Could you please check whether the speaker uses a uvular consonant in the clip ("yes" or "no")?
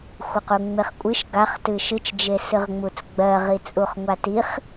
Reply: yes